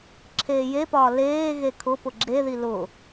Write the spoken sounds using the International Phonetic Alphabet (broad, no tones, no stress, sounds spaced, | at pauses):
ǁʰ eː j e p ɒː l eː ɣ e kʰ ʊ p ʊ ɡ͡ǁ e ð i l ʊ